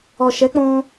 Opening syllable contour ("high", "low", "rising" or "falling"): low